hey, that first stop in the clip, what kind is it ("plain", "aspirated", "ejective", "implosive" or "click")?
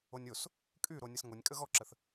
ejective